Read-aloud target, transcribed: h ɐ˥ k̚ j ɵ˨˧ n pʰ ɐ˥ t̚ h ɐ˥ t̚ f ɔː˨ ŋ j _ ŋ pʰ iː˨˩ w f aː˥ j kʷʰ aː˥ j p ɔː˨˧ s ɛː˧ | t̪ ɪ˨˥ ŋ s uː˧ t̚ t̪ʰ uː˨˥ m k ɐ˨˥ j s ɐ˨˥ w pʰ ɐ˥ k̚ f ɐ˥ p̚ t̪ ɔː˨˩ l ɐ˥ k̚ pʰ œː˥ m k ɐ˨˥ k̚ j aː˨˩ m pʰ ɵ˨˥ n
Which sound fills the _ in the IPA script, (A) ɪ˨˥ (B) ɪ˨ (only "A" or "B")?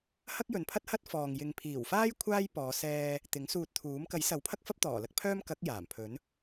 B